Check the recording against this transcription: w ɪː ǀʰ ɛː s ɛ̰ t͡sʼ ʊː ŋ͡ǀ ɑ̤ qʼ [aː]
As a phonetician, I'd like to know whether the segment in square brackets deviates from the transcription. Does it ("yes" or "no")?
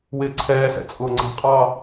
yes